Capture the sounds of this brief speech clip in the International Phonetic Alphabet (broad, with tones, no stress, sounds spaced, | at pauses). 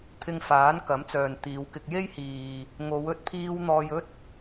t̪ʰ ɪ˧ ŋ f aː˨˥ n k ɐ˨˥ m t͡s œː˨ n t̪ iː˨˧ w k ɪ˧ k̚ j e˥ j h iː˨ | ŋ o˨˧ w ɵ˧ t̚ pʰ iː˧ w n̪ ɔː˧ j ɵ˥ t̚